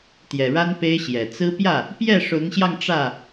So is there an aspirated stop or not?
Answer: no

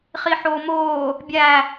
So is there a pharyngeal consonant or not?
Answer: yes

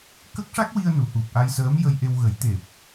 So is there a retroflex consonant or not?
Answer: yes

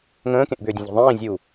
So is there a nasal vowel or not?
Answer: yes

